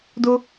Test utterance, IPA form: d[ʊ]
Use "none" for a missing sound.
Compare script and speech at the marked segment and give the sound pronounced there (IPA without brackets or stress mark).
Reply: ʊ